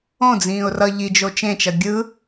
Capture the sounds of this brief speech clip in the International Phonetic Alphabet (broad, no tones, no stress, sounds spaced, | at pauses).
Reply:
õ d͡z ĩː ʊ̯ r ʌ ʎ i d͡ʒ o t͡ʃ ẽ t͡ʃ ʌ ɡʲ ɯ